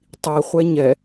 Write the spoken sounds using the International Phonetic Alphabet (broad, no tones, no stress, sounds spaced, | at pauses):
tˤ i χʷ ɛ ɲ ɛ